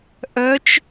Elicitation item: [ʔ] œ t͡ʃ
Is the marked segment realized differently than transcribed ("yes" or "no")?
no